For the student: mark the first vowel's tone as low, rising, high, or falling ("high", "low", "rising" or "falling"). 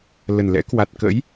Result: low